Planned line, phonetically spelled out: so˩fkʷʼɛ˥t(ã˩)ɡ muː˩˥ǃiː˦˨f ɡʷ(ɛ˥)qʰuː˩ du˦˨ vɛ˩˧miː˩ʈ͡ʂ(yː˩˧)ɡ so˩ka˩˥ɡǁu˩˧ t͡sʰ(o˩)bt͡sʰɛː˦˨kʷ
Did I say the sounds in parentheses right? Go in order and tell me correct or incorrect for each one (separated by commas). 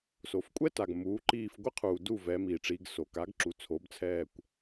incorrect, incorrect, incorrect, incorrect